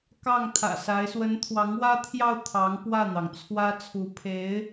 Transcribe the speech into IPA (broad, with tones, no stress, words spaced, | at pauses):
kɑ˥˩ŋt̪ʰä̰˨˩sa˧˥ɪ̯ swə˧˥nt̪ʰwɑ˧˥ŋwä˥t̪ʰjɑ˥˩ʊ̯ t̪ʰɑ˧˥ŋpwä˥˩n̪ɑ˩ŋt͡sʰwä˥ t͡sʰu˧˥pʰe˧˥ɪ̯